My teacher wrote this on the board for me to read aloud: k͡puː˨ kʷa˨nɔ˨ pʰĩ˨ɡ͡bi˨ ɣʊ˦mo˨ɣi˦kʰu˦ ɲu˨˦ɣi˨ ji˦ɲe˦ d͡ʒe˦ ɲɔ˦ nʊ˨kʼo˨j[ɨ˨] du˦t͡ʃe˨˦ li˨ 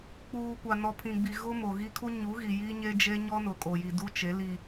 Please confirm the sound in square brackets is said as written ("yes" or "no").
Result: no